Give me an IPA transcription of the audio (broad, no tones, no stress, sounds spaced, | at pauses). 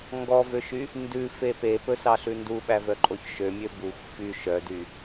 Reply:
ŋ ɡ ɔ v ø ʃ y | n d ʉ f e p e p ɵ s ɑ ɬ ʉ n d u ɓ æ v œ ǃʼ o ç ʃ ø mʲ ø b u xʷ f y ʃ œ d y